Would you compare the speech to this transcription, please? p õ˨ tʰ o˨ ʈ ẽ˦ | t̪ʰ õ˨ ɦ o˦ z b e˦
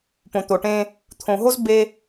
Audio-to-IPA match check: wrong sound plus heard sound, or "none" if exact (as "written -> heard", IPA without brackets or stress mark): tʰ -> t̪